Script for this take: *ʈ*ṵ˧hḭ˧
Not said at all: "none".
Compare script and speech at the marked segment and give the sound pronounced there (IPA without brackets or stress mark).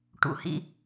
ʈ